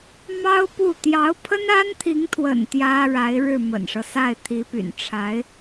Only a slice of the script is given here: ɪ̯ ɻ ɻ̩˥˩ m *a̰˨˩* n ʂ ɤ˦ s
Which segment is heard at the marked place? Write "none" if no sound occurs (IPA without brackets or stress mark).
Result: ə̰˨˩